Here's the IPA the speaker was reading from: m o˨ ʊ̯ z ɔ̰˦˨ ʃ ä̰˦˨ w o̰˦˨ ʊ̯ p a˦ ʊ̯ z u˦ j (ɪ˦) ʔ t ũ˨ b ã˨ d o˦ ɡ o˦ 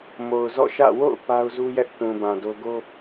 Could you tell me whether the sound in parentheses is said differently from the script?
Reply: yes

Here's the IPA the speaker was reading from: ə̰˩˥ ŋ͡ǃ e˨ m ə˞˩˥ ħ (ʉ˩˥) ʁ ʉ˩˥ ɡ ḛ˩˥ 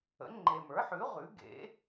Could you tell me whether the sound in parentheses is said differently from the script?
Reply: no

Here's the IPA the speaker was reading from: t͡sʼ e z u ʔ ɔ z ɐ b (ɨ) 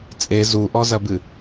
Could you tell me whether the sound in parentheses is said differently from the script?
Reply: no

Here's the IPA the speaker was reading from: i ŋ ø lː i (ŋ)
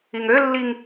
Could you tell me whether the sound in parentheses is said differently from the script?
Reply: no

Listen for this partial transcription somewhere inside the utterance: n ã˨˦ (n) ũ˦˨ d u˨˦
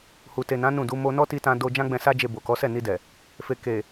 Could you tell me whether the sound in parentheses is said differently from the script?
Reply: no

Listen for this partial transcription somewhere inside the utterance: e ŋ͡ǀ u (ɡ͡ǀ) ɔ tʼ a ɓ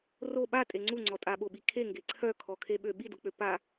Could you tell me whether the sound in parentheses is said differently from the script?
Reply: yes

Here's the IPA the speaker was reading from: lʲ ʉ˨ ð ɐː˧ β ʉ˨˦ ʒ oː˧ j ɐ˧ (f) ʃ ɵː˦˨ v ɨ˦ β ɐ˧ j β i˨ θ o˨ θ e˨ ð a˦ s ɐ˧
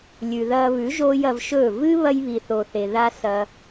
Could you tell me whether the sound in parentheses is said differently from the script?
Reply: yes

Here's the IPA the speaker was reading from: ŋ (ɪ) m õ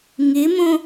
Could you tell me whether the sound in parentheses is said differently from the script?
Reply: no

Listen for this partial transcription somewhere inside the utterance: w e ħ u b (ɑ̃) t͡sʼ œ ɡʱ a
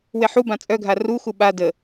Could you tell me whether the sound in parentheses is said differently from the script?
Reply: yes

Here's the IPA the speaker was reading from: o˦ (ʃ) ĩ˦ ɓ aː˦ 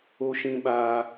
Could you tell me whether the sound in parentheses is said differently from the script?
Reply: no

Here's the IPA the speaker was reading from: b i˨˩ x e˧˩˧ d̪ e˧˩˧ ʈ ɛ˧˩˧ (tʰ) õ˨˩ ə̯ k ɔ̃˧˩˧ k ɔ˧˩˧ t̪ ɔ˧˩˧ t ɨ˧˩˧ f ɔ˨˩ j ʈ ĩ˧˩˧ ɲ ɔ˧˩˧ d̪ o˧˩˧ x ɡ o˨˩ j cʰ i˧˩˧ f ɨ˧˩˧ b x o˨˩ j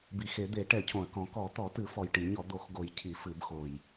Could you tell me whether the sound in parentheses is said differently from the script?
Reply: yes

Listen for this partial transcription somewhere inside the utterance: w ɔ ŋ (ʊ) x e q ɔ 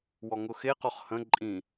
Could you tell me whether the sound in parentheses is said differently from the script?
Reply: no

